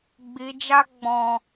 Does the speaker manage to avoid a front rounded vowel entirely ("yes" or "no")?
yes